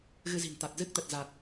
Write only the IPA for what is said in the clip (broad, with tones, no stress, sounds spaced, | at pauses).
ɣ ɨ˧ z i̤˨˩ n t̪ a˨˩ t̚ z ɨ˦˥ k̚ t̪ ə˨˩ t̚ z a˨˩ t̚